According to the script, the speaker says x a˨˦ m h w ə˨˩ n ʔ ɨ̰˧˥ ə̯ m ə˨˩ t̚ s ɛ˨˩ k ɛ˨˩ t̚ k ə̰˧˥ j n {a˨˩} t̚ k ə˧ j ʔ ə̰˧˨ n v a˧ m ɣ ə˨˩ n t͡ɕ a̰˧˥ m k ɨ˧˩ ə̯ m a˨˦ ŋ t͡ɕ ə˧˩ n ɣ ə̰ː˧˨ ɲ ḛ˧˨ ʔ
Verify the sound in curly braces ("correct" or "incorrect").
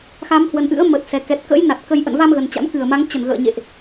correct